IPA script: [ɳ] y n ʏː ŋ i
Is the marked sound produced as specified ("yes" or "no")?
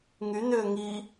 no